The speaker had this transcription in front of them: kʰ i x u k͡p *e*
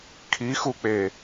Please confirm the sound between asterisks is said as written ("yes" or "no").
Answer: yes